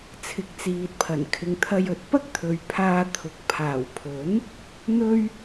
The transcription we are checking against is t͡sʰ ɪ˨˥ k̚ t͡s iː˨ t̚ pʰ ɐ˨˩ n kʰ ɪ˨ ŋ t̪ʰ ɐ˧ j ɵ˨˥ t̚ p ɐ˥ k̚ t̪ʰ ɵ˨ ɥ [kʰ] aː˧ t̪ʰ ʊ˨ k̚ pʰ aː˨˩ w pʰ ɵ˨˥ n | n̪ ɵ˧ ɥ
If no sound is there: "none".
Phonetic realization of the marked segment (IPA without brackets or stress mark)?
pʰ